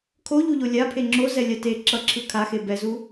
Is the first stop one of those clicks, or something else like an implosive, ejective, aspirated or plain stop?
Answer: aspirated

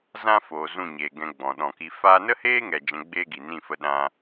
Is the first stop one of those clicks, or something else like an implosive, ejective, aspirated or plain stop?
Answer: plain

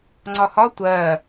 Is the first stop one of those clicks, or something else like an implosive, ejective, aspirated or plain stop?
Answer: click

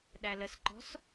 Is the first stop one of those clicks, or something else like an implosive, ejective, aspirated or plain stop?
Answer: implosive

